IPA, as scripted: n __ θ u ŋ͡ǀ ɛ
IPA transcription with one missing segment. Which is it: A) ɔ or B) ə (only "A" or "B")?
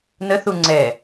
B